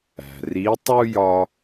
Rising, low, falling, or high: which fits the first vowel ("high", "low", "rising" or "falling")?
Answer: low